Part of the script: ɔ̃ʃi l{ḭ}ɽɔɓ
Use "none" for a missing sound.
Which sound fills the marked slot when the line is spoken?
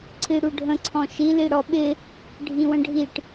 i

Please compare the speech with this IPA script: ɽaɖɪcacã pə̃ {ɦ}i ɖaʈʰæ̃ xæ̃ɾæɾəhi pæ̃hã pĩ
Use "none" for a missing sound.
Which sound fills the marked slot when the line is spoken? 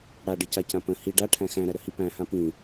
h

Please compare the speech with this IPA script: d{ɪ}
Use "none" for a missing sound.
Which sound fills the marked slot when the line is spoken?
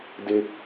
ɪ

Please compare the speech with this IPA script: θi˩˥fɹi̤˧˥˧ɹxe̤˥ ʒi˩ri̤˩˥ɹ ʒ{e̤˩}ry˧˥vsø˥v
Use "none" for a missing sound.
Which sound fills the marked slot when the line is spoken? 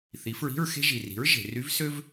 e̤˩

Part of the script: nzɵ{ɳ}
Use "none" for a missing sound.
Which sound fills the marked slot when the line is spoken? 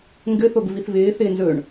ɳ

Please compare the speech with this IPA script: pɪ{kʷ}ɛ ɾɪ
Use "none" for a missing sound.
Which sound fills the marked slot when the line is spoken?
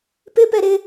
p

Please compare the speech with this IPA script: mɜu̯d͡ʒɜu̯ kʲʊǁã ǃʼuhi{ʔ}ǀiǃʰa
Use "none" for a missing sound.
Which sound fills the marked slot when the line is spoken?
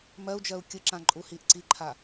ʔ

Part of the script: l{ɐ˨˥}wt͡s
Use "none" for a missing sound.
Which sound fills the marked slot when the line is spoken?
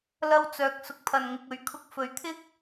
ɐ˧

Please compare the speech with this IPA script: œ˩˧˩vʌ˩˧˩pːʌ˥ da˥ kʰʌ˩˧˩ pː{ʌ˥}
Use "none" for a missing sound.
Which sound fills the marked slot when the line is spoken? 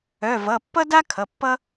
ʌ˥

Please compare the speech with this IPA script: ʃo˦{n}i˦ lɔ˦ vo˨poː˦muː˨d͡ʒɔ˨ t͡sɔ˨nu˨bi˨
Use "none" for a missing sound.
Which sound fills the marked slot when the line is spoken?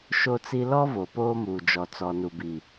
t͡s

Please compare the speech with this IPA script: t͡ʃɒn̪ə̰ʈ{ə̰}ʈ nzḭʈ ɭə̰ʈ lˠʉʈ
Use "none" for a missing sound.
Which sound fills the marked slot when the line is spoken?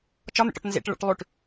ɔ̰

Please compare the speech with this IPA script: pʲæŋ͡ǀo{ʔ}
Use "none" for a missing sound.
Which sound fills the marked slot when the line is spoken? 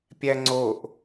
ʔ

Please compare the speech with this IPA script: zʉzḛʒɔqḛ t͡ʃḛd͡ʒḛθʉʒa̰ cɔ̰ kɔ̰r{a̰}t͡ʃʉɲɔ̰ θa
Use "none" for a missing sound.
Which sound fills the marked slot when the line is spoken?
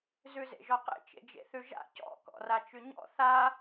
a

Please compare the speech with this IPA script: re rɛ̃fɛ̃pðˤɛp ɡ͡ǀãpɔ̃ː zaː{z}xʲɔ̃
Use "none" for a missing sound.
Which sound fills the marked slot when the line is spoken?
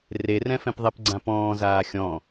none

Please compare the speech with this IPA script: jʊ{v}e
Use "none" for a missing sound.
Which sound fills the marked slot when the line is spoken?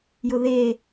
ð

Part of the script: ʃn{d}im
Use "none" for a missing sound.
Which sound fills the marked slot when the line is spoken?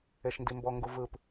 d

